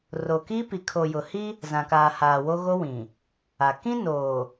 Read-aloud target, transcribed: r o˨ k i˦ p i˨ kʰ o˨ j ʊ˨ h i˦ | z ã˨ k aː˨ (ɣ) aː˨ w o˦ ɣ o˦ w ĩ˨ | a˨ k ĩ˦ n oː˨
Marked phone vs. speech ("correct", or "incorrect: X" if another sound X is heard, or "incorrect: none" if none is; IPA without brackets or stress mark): incorrect: h